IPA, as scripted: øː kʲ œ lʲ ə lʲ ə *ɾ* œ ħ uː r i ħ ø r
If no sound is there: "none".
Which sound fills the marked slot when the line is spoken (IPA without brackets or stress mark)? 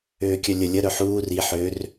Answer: ɾ